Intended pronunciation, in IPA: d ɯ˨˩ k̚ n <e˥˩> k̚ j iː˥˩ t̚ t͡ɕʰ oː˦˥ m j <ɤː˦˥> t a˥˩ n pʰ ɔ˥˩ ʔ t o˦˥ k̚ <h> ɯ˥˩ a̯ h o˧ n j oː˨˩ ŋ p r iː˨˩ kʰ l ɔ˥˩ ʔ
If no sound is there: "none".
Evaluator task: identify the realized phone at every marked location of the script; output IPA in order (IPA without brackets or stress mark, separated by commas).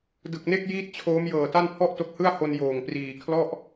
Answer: e˥˩, ɤː˨˩, h